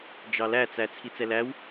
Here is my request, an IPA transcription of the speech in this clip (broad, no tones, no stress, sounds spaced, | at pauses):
d͡ʒ ɑ l æ t͡s æ t͡sʰ i t͡s ɛ l æ w